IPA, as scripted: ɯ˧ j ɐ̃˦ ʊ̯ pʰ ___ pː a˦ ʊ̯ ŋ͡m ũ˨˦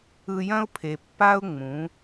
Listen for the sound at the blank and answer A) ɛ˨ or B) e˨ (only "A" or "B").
B